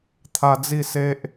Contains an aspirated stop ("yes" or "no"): yes